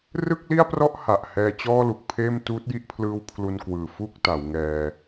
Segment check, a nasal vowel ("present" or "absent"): absent